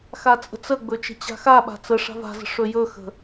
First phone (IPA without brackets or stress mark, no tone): x